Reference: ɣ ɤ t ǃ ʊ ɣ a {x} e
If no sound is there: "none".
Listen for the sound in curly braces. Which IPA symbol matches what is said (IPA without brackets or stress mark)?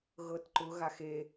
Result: x